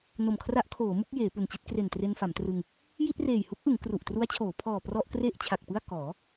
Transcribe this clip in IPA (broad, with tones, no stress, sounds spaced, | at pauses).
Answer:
n o˨˩ m kʰ r a˦˥ ʔ kʰ oː˩˦ m u˥˩ k̚ j eː˩˦ p u˨˩ n t͡ɕ i˥˩ t̚ k r e˨˩ n t r e˧ n f a˩˦ m t r ɯ˧ ŋ | j i˥˩ t̚ r eː˨˩ j h u˦˥ k̚ ʔ ɯ˩˦ ŋ k r u˨˩ ʔ t r u˦˥ a̯ t͡ɕʰ oː˩˦ pʰ ɔː˨˩ p r ɔ˥˩ ʔ k r e˥˩ ʔ t͡ɕʰ a˨˩ k̚ p ɯ˥˩ a̯ k ɔː˩˦